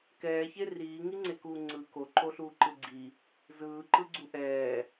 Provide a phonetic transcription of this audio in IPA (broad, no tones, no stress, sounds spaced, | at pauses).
k ɛː ç e r iː ŋ i ŋ͡ǀ e k uː ŋ͡ǀ ɯ k o ǃ o ɬ uː ǃ ɯ ɡ͡ǀ i | z ɯː ǃ ɯ ɡ͡ǀ u ʔ ɛː